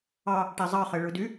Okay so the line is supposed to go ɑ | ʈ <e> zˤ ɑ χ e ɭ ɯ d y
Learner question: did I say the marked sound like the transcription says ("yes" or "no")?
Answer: yes